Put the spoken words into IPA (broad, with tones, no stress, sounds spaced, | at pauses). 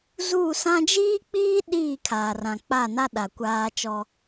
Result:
z uː˦˨ s ã˦ d͡ʒ iː˦ k͡p iː˦ ɗ iː˦˨ kʰ aː˨ r ã˨ k͡p a˦˨ n a˦ ɗ a˨ kʷ aː˦ t͡ʃ ɔ˦